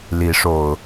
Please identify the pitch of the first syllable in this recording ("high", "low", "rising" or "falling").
rising